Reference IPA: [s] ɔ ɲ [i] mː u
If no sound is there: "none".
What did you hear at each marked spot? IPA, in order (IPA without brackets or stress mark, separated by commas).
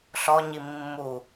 ɬ, i